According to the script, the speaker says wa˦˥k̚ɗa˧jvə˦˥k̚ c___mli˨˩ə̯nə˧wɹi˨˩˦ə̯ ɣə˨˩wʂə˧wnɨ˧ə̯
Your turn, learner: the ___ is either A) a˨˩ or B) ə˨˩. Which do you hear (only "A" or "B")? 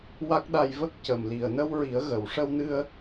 B